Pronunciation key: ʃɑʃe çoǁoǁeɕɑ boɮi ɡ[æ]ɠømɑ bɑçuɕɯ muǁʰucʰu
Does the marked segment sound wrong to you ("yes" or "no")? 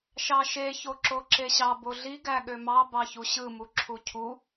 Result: no